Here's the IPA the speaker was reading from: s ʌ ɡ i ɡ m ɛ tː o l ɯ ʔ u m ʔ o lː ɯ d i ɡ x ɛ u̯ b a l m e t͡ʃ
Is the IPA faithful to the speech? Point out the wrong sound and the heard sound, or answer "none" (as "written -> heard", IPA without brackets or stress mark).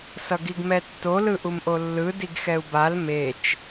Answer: none